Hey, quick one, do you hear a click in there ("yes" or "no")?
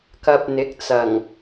no